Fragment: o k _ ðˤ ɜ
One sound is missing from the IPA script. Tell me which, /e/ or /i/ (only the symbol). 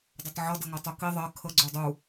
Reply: i